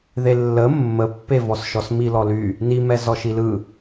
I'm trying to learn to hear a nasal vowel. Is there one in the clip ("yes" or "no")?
no